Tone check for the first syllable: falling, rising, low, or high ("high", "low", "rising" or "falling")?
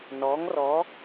rising